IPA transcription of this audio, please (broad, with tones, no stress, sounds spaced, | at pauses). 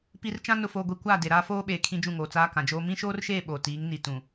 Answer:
p i˨ r t͡ʃ ã˦ n ʊ˨ f oː˨ ɡʷ i˨ kʷ aː˦˨ d e˨ ɾ aː˦ f oː˦ ɓ eː˨ kʰ ĩ˦ d͡ʒ ũ˦˨ ŋ oː˨ t͡s aː˦ k ã˨ d͡ʒ oː˦ m ĩ˦ ʃ oː˦ r ʃ eː˦˨ ɓ oː˨ t iː˨˦ ŋ n i˨ t ũ˨